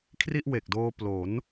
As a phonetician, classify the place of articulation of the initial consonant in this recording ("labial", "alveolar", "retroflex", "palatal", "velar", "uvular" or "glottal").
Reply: velar